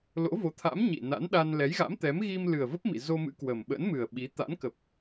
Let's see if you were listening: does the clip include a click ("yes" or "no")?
no